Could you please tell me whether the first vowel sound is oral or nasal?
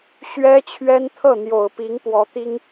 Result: oral